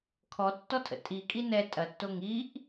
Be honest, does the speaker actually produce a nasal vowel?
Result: no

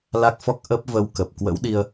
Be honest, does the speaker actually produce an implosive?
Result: yes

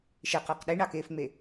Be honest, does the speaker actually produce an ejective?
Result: no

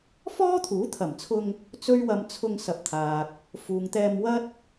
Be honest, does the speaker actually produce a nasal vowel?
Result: no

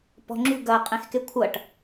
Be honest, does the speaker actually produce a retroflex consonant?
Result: yes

